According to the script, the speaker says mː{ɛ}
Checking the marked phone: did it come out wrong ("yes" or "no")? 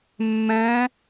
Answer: yes